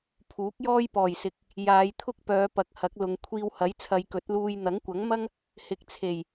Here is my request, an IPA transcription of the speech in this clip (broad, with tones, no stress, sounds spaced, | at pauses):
pʰ uː˨˥ k̚ j ɔː˥ j p ɔː˨˩ j s ɪ˨ k̚ | j aː˨˧ j t̪ʰ ʊ˥ k̚ p œː˨˧ p ɐ˨˥ k̚ h ɐ˨˥ k̚ l ʊ˨˧ ŋ kʷʰ iː˧ w h ɐ˨˥ j t͡sʰ ɐ˨˧ j k ɵ˨˥ t̚ l uː˧ j n̪ ɐ˨˥ ŋ kʷ ɐ˨˥ ŋ m ɐ˥ ŋ | h ɪ˨˥ k̚ t͡sʰ e˨˩ j